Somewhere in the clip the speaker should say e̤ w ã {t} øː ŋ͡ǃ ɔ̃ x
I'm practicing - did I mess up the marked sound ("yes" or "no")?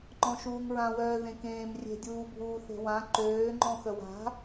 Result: yes